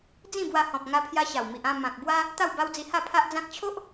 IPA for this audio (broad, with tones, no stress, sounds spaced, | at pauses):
d͡z ĩ˥˧ b w a˧ h ɔ̃˨ p̚ ŋ a˧ pʰ j a˧ ɕ a˨˩ w m i˨ ʔ ã˥˧ m ã˨ k̚ b w a˦ | t̪ a˥˧ w b a˦ w d͡z i˧ h a˥˧ pʰ a˦ ʔ d͡z ã˦ k̚ t͡ɕʰ o˦ ʔ